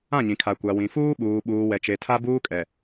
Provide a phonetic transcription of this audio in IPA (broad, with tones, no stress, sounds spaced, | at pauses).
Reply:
ã˦˨ ɲ ĩ˨ kʰ a˨ kʷ a˨ w ĩ˨ f uː˦ ɓ uː˨ ɓ uː˨ w ɛ˨ t͡ʃ e˨ tʰ a˦ b uː˦ kʼ ɛ˨